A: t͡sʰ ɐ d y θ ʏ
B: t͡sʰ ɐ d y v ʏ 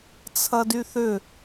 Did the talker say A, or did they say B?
A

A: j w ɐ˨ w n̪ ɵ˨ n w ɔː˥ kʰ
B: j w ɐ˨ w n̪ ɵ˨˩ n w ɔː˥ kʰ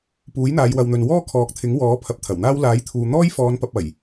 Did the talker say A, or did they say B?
A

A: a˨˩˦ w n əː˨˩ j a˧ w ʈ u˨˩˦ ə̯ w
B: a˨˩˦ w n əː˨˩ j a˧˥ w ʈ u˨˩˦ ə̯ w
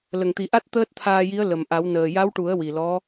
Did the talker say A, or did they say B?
B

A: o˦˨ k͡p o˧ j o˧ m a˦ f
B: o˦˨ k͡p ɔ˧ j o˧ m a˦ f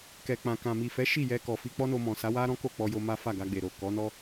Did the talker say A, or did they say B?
B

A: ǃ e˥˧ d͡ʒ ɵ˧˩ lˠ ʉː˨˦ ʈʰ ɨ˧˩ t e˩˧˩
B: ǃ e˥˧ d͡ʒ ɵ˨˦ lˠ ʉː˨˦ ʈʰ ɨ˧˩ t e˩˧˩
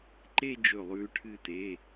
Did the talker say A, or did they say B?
A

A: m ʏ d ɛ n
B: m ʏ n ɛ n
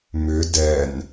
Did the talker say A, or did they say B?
A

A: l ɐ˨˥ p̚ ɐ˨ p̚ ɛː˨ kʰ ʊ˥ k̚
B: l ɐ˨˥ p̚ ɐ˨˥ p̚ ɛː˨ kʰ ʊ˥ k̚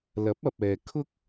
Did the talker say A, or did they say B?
A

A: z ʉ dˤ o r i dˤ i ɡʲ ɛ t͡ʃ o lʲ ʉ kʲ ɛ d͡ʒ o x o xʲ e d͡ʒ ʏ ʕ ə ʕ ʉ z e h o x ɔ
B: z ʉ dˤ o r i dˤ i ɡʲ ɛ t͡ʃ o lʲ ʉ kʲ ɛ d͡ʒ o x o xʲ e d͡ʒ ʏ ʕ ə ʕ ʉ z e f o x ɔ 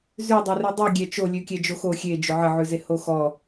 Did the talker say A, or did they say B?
A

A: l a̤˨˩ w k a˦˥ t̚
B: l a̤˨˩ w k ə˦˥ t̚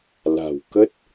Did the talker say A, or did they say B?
B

